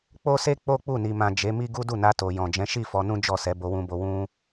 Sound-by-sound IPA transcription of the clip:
k͡p o˦ s e˦ k͡p o˦ k͡p u˦˨ n i˨ m ã˨ d͡ʒ e˨˦ m i˦ ɡ u˦ d u˦˨ n a˧ t o˨ j ɔ̃˨ d͡ʒ ɛ̃˨˦ ʃ i˦˨ f ɔ˧ n ũ˦ d͡ʒ ɔ˦˨ s ɛ˨˦ b o˧ w ũ˧ b o˧ w ũ˦

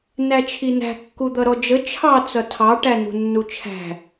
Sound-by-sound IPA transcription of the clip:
n æ t͡ʃʰ i n æ̤ kː u d̪ ʌ ɾ ɔ d͡ʒ ə t͡ʃʰ ɑ t͡s ʌ tʰ ɑ ʈ æ n ṳ nː u t͡ʃʰ æ̤

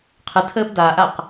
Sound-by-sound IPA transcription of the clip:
qʰ ɨ tʰ əː b d a ʔ a q

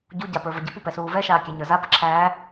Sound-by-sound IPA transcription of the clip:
ɟ u ɟ a p ə˞ v ə ɟ ə p u p ɛ s uː v ɛ ʃ aː kʲ æ ɲ ə˞ z a p ə ǁʰ æː

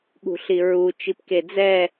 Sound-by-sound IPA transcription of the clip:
ɠ ṳ ɬ i ɹ u t͡ʃ i p k e d͡z ɛ

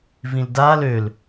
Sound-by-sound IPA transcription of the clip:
v ĩ l d a l ø l

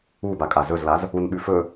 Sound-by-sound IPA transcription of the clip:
u b a kʼ a z ɵ z l a z | u n ɓ ʉ f ɵ

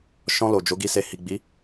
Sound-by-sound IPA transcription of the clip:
ʃ ɔ̃˧ l o˨ d͡ʒ o˨˦ ɡ i˧ s e˨ h i˨ ɡ͡b i˨˦

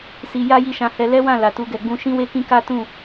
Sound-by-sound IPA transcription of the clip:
s i˧ j a˦ j i˦˨ ʃ ã˧ h ɛ˧ l ɛ˦ w ã˦˨ l a˨ t u˧ ɡ ɛ˨ ɡ͡b ũ˧ ʃ ĩ˦ w e˦ k ĩ˦ k a˦ t ũ˦˨

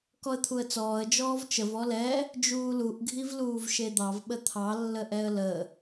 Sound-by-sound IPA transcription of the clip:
k ɔ ə̯ t̪ʰ u ə̯ t͡s ɔː ə̯ d͡ʒ ɔː v t͡ʃ ə v ɔ l ɛ | d͡ʒ uː l u ʔ ɡʱ i v l uː v ʃ e d̪ ɑ v ɓ ə t̪ʰ ɑ lː ə ʔ ɛ ə̯ l ə

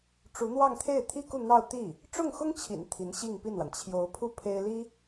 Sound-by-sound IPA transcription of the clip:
ʈ͡ʂ u˧˥ n̪ w ɑ˥˧ ŋ t̪ʰ e˥˩ ɪ̯ t̪ʰ i˥ k u˥˧ n̪ ɑ˥˧ ʊ̯ t̪ i˥˩ | ʈ͡ʂ ʊ˥˩ ŋ x ʊ˥ ŋ t͡ɕʰ ḭ˨˩ n t̪ʰ i˧˥ n ɕ i˥˧ ŋ p i˥˩ n w a˩ n t͡ɕʰ j o˧˥ ʊ̯ pʰ u˥ pʰ e˥ ɪ̯ l i˥

